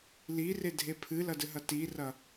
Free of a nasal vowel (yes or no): yes